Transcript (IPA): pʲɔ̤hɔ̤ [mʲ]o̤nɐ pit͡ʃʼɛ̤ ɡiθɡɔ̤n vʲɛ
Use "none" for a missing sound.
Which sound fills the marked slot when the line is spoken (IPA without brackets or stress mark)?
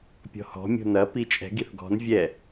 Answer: mʲ